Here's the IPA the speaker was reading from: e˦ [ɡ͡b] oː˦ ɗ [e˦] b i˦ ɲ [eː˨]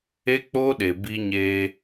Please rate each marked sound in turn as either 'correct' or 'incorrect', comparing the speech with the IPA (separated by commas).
incorrect, incorrect, incorrect